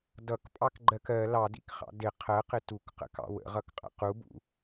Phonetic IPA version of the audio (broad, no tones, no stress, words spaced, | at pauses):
dʌkpʼɑkɡ͡ǃɜk ɜ lɑdḭkχɑ̰ dɪ qʰɜqɪ tukqə̰kɑ̰ wə̰ʁʌkqʼə̰ qubṵ